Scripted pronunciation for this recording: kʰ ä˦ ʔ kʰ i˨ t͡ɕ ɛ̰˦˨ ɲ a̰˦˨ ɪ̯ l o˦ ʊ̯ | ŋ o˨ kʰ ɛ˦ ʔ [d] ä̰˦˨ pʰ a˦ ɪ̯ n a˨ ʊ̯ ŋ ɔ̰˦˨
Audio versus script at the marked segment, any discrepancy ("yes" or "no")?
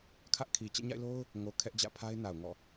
yes